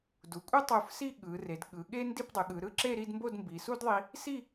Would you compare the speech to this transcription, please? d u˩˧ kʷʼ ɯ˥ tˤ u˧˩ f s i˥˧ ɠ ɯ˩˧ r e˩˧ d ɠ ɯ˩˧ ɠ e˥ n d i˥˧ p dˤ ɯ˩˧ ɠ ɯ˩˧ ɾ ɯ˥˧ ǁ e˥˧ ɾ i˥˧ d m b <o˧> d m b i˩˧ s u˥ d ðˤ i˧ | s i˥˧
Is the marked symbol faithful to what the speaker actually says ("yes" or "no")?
no